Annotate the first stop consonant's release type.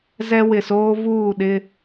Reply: implosive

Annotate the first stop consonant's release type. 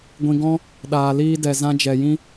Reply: plain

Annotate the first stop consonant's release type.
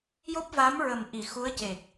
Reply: plain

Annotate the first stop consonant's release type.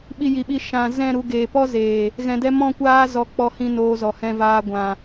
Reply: implosive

